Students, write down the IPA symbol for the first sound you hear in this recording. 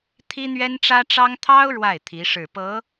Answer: t̪ʰ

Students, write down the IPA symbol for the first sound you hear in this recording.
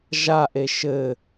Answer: ʒ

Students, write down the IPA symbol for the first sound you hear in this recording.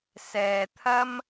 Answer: s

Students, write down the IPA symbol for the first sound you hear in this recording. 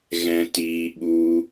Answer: ɣ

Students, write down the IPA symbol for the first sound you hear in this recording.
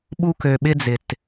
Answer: ɓ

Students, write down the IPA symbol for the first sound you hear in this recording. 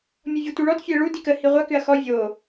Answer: mʲ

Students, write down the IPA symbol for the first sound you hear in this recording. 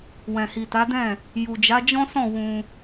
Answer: w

